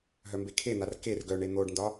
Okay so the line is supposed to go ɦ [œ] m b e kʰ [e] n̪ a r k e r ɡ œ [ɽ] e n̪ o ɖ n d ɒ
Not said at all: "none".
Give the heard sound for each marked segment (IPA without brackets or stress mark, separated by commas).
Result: œ, e, ɳ